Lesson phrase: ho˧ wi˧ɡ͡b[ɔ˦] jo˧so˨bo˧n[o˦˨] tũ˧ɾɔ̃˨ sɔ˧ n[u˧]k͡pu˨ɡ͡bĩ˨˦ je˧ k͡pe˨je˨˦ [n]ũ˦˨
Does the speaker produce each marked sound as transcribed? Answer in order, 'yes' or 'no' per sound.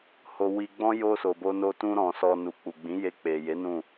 no, no, no, yes

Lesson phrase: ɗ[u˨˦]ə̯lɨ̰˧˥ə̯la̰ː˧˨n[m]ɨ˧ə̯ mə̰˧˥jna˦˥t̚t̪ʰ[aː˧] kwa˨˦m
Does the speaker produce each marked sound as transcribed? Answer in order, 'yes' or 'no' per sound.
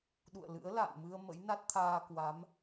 no, yes, yes

